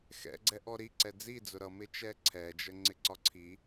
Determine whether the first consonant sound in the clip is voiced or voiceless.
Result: voiceless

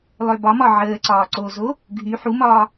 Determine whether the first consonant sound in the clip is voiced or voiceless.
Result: voiced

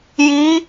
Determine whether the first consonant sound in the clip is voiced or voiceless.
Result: voiced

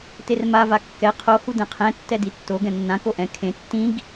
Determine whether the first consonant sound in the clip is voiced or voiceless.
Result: voiceless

